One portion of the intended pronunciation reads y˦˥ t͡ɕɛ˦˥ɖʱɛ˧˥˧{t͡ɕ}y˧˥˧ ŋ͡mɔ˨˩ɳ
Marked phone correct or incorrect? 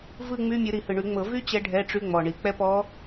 incorrect